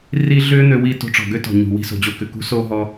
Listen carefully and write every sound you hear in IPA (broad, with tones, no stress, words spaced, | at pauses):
ri˦ ɮʏː˦n̪ø˧ wi˧ to̤˧ʈ͡ʂɔ̤˨ɡø˦ tɔ̤˨ɲṳ˨ wi̤˧so̤˨d͡ʑo˧kʏ˨ kṳ˧so˧ɦɔ˧